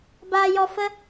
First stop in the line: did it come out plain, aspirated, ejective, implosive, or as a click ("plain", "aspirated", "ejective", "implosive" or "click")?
plain